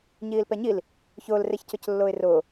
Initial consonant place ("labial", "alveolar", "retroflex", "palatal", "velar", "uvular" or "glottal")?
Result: palatal